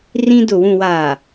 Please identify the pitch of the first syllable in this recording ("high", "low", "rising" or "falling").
high